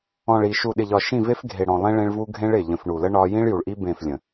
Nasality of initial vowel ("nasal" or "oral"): nasal